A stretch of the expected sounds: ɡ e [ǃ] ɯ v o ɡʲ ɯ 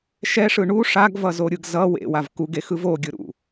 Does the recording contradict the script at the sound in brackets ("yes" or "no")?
yes